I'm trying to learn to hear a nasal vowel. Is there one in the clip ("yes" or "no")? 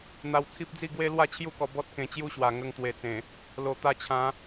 yes